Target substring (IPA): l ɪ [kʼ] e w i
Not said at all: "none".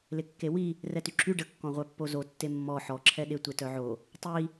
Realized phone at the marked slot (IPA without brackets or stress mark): kː